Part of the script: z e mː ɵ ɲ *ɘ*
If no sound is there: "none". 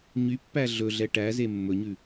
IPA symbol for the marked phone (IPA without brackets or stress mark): ʉ